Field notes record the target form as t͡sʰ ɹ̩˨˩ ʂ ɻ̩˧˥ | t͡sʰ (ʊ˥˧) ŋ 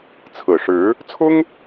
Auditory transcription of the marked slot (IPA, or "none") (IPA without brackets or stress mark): ʊ˥